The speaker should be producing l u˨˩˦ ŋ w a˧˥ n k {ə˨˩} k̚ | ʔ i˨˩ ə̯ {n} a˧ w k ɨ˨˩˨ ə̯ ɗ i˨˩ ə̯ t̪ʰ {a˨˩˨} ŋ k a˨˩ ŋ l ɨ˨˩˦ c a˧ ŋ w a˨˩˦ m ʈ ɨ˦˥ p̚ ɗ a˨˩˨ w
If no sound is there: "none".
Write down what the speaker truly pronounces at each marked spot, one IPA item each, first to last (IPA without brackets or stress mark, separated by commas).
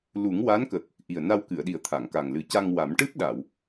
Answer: ə˨˩, n, a˨˩˨